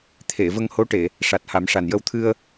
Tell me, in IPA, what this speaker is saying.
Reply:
t̪ʰe˨˩˨ və˧ŋho˧˥ʈe˨˩˨ | ʂa˨˩t̚ha˨˩˦mʂa˨˩njə˧w t̪ʰɨ˧ə̯

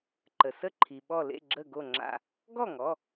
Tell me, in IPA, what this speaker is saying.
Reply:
ǃə˩sə˥˨ǃʰi˩ ɓɔ˧˩lḛ˥˨ ɡ͡ǁə˧˩ɡo˧˩ ŋ͡ǁa̰˧˩ | ɡɔ˥˨ŋɔ˩˧˩

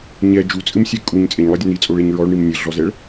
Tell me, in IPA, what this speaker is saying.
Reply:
ɲɛ d͡ʒut͡sʼɨmsʲɛ kʼuɲ t͡sʼeɲlˠɐdʲɐ nit͡sʼoɭeɲ ɹɔɭɳim nʲɘɮɔzɛɭ

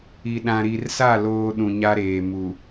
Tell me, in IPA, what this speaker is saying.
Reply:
i˨ ɗã˨ɾi˨rsa˦˨ loː˦ɗũ˨ɲa˦ɾeː˨ mu˨

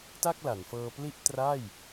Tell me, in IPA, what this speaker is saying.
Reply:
ta˥˩k̚la˩˦nfɤː˧pli˥˩ʔ tra˥˩j

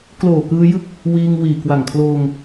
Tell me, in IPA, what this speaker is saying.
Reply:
kloː˨˩kɯː˧jɯ˦˥k̚ | wiː˧ŋwiː˨˩ kwa˨˩ŋkʰloː˧ŋ

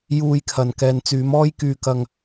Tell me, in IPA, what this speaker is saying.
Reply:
juː˧jkʰɐ˨n kɛː˨nt͡syː˨˥mɔː˥j kyː˧kɐ˧ŋ

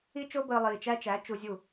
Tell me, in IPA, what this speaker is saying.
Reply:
i˦t͡ʃo˦ bəː˨ lˠiː˨t͡ʃæ˦t͡ʃæ˨˦ t͡ʃu˨zʲu˦˨

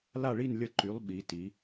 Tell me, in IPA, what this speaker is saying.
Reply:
la˥˧ɭi˥˧n lʲə˧ǃy˩˧lˠ ɓi˩˧ti˩˧

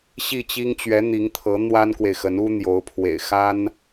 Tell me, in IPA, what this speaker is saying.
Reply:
ɕi˥˩t͡ɕi˥ŋ t͡ɕɥɛ˧˥n̪i˧˥ŋt̪ʰɤ˧˥ n̪wa˥nkwe˨ɪ̯xə˧˥n u˥ n̪jo˧˥ʊ̯pʰwḛ˨˩ɪ̯ xa˥n

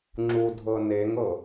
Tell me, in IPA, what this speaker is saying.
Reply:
ŋ͡ǁudʱɤ neŋɤ

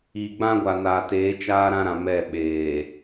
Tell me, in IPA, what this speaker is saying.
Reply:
iː˨ɡ͡bã˦ɡʷa˨naː˨ teː˨˦t͡ʃaː˦ɾã˦ɾã˨ mɛ˦˨ɓeː˨

